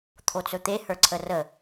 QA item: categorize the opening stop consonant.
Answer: aspirated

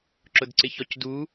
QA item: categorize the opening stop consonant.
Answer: click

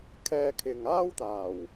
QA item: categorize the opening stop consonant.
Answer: aspirated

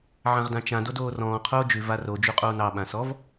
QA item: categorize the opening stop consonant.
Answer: plain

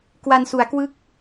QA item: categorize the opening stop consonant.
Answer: plain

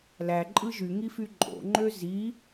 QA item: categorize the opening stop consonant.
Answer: click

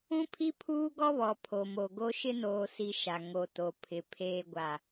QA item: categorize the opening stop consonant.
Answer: aspirated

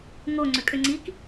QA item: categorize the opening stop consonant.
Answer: click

